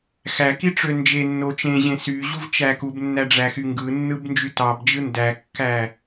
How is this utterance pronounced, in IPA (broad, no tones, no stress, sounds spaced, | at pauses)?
x æ k i ʈ͡ʂ ø n d͡ʒ e nː o t͡ʃ ẽ ʑ ẽ s y ʑ u v t͡ʃ æ k u b nː æ ɖ͡ʐ æ x y ŋ ɡ ɯ nː ɯ b n d͡ʒ y t ɑ b d͡ʒ ɯ n d æ kː æ